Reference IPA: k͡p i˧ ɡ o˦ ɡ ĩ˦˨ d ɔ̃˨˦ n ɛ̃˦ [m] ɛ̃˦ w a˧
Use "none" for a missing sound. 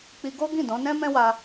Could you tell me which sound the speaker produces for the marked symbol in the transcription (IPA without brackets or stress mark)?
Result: m